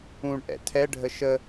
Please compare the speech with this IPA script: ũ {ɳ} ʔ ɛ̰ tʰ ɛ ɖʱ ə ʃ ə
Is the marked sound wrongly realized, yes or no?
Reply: no